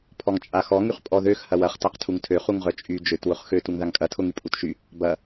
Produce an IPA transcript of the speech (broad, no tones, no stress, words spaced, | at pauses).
pʰɔŋt͡ʃʼaxɔ ŋyχpʼɔðøx hɐwɐχ taqtʰuŋtʰø χuŋʁœt͡ʃʼy d͡ʒøt wʊχxø tuŋðaŋkʼɐ tʰʊŋypʼutʃy | bɐ